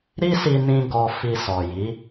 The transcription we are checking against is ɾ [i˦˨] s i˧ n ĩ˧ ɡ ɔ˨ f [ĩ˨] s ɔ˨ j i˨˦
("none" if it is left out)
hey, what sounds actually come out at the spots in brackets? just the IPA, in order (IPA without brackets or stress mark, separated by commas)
i˦, i˨